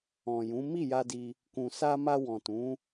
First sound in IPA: ɔ̃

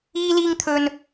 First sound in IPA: iː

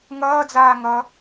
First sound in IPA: ŋ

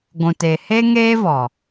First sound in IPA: ɡʷ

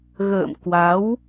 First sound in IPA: ɣ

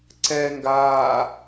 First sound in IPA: ǀ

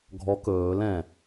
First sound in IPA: ɡʱ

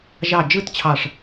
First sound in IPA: ʒ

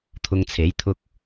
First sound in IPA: t̪ʰ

